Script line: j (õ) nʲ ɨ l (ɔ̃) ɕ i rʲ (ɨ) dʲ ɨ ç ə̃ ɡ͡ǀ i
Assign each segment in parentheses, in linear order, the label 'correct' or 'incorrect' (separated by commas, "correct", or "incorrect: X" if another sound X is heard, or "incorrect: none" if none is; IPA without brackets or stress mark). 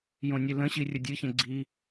correct, incorrect: ə̃, incorrect: ə